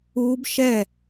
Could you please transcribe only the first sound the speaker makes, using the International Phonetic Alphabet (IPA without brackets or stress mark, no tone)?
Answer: uː